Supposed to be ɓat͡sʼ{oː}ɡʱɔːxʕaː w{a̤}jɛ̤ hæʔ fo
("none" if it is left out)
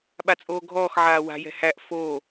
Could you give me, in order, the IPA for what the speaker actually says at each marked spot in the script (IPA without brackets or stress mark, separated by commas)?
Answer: oː, a̤